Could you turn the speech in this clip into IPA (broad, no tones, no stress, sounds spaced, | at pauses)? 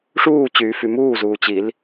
ʂ uː t͡ɕ yː f y m uː z uː t͡ɕ i l